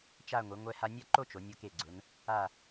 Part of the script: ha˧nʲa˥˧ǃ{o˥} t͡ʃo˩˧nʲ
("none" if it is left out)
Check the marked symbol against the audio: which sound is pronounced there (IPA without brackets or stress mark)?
o˥